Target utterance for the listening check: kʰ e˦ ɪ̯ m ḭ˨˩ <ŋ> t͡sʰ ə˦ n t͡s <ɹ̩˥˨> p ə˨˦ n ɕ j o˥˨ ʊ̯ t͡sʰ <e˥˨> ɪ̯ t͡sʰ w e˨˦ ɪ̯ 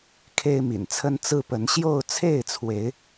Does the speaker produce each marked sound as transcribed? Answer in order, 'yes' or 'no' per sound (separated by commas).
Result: no, no, yes